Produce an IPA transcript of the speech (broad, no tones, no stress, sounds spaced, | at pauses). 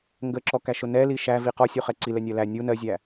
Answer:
ŋ ɡ ə ǁ ɔ k æ ʃ ʊ n ɛ l i ʃ æ v i q ɔ sʲ u χ ɛ ǀ i l ɛ nʲ ɜ l æ nʲ u n ɜ zʲ æ